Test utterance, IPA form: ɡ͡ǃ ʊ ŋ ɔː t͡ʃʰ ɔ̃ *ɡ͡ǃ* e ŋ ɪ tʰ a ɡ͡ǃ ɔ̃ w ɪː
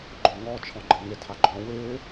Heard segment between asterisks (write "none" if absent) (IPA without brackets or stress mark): ɡ͡ǃ